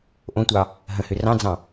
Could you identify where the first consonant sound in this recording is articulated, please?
glottal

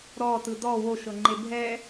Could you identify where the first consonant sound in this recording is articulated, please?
alveolar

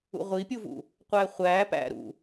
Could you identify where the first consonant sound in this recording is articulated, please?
uvular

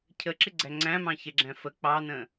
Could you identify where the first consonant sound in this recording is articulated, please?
palatal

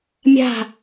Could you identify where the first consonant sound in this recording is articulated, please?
labial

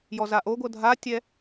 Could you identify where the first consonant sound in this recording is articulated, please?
palatal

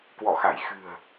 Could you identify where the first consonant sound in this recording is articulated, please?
velar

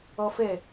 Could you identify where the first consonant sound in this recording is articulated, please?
labial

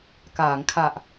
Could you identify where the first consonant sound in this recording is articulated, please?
velar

